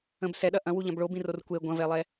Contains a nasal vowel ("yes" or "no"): yes